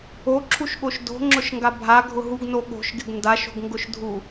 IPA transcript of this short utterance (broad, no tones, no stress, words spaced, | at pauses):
oǁʰuʃɠoʃ do̤ŋ͡ǁʊʃŋɡa bʱaɡʱʊ ɦuɡno ɠo̤ʃɡɪɡ ndaʃo̤ɡŋɡʊʃdʱu